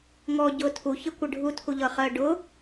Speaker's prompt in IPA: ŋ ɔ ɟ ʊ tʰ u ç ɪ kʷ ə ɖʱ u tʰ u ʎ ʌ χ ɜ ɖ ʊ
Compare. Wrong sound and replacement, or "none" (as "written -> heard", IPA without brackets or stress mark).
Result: none